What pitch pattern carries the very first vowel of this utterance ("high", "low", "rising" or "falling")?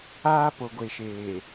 high